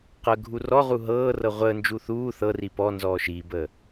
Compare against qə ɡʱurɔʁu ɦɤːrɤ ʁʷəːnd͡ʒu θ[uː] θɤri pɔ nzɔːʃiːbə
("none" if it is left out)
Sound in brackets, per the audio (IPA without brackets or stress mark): uː